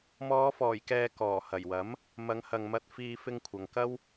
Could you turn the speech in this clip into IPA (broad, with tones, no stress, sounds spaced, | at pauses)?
m ɔː˨˧ f ɔː˨˩ j k ɛː˨ k ɔː˨˩ h ɐ˨˩ j w ɐ˨˥ m | m ɐ˨˧ ŋ h ɐ˨ ŋ m ɐ˧ t̚ f iː˧ f ɪ˧ ŋ kʷʰ ɐ˨ ŋ k ɐ˥ w